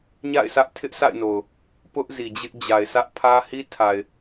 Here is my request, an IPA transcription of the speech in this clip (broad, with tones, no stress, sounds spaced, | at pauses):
ɲ a̰˦˨ ɪ̯ s ä˦ ʔ tʰ ɪ˦ ʔ sʰ a̰˦˨ ɪ̯ n o˨ ʊ̯ | p ʊ˦ ʔ z i˨ d͡ʑ ɪ˦ ʔ d͡ʑ a˨ ɪ̯ s ä˦ ʔ pʰ ä˦ h i˦ tʰ a˨ ɪ̯